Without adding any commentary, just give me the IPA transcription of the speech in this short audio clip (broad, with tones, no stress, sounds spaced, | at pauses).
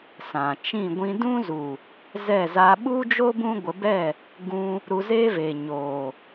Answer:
s ã˨ t͡ʃ ĩ˦˨ ɡʷ ĩ˧ d ũ˦ z u˨ | z ɛ˦˨ z aː˧ ɓ u˦ d͡ʒ o˦ b ũ˦ ɡʷ ə˨˦ b ɛ˦˨ | ɡ ũ˧ | ɾ u˧ z eː˦ v eː˨ ɲ oː˨